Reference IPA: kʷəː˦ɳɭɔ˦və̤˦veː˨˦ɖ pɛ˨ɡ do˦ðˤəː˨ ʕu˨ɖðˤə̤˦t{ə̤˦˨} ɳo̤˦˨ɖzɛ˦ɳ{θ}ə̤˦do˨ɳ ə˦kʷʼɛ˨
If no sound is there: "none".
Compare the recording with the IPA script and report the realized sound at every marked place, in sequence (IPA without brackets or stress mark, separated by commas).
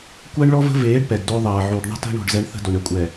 ə̤˦, θ